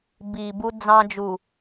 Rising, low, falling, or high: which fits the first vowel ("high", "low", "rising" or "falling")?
low